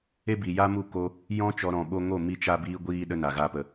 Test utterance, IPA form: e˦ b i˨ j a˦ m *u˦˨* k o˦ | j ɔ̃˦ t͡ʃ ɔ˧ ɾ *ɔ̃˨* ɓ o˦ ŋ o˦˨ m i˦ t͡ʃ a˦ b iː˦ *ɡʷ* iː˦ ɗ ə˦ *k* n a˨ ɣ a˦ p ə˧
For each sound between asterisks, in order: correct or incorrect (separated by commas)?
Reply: correct, correct, correct, incorrect